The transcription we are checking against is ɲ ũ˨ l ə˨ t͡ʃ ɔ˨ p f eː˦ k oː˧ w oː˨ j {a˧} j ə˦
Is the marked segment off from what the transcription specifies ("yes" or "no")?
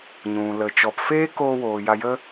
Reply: no